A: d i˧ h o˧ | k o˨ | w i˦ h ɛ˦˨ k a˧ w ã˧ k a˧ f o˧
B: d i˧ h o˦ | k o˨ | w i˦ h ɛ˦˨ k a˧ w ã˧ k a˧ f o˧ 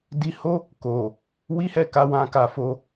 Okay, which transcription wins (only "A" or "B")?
B